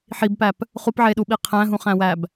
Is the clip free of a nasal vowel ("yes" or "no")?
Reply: no